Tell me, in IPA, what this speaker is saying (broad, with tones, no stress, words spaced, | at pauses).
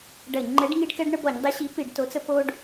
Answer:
ɖɐ˧˩˧ɲŋ͡ǃɛ˨˥ɖŋi˦ɖ kɛ˦ɖɳə˦bɔ˧˩˧ɲdˤi˨˥ ɕi˨˥pi˧˩˧ɖ to˨˥t͡sə˦ po˦ɖ